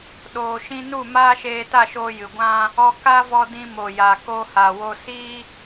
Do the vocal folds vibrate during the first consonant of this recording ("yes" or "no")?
yes